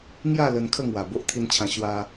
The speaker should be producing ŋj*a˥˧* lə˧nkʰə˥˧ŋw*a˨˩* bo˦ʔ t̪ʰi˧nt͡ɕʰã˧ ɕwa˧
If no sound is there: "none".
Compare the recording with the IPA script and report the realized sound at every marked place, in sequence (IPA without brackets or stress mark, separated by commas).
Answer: a˥˧, a˨˩